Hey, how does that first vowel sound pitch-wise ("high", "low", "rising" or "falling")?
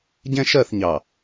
high